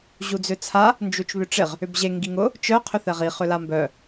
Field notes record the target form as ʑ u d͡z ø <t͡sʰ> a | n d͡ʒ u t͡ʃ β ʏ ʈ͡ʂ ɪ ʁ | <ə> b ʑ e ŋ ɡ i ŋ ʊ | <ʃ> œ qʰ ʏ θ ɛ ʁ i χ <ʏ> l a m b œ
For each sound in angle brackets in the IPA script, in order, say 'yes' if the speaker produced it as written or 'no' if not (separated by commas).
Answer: yes, no, no, yes